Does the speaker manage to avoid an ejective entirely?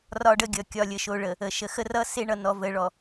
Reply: yes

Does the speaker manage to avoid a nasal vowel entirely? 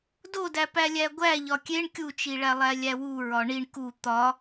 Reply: yes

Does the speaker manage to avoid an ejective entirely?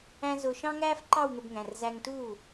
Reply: yes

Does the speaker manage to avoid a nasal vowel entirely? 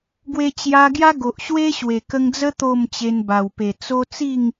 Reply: yes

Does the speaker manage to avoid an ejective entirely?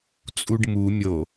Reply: no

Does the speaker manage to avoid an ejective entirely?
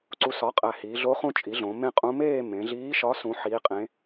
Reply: no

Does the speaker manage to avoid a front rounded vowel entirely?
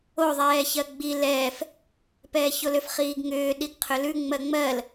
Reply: no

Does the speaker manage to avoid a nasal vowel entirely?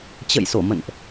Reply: yes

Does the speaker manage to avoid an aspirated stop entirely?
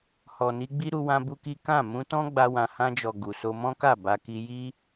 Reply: yes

